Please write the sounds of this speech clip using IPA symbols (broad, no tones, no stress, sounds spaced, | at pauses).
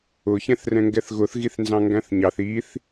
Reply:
ʊ ç ɛ̃ θ r ɛ̃ ŋ ɡ ɛ θ ɣ ʊ θ ɣ i θ n z ɑ̃ ŋ ɡ æ̃ θ ɲ ɑ θ i θ